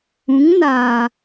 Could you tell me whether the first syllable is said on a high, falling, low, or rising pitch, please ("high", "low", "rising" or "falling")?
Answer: rising